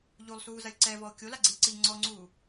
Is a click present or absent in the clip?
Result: present